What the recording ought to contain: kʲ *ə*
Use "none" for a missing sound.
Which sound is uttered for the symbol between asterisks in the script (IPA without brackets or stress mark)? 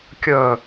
œ